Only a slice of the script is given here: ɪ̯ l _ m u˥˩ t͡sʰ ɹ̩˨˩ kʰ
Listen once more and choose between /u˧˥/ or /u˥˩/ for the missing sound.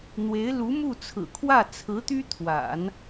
u˧˥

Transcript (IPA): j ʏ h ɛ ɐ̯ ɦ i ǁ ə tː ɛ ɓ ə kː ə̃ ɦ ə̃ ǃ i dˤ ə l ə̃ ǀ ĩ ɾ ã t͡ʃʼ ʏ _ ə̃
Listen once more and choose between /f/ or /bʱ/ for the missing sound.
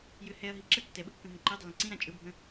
bʱ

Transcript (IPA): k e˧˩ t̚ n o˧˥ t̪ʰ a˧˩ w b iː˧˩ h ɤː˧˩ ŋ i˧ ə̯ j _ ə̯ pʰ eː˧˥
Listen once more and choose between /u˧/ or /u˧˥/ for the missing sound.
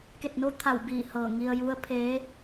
u˧˥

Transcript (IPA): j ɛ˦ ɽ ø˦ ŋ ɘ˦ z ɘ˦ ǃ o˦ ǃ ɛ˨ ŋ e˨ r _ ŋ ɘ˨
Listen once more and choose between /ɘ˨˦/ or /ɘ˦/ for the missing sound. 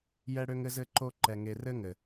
ɘ˦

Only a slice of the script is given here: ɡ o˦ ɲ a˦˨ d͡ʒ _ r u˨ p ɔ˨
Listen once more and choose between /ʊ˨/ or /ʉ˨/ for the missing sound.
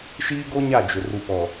ʊ˨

